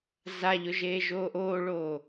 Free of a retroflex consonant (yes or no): no